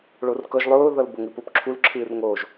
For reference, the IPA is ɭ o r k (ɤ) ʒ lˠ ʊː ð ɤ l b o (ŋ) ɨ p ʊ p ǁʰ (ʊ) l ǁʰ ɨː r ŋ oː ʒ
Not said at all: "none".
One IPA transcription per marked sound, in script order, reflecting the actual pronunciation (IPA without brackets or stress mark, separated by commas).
ɤ, ŋ, u